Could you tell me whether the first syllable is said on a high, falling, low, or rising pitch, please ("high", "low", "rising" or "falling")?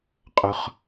low